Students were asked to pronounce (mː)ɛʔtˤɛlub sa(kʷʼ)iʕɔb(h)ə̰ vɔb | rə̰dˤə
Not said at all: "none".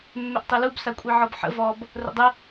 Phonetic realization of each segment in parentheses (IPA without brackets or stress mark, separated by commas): mː, kʷʼ, ħ